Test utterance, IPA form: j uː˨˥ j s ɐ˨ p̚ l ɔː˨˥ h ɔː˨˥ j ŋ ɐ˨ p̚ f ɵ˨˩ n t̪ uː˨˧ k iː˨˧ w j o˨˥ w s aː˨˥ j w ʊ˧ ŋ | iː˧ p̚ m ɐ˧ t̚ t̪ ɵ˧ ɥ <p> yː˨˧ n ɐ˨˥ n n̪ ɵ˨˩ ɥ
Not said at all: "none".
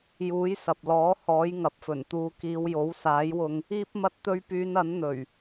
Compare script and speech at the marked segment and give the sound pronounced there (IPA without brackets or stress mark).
p